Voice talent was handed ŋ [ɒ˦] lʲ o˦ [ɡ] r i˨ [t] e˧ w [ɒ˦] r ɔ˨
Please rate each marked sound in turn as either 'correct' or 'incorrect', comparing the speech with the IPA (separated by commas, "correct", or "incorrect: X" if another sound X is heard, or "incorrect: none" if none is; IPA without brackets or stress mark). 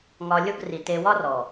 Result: incorrect: ɒ˧, correct, correct, correct